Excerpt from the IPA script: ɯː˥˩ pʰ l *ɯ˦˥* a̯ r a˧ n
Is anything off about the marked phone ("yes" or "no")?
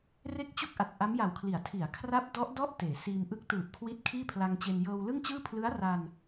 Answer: no